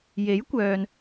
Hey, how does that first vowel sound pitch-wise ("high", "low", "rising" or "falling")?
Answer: rising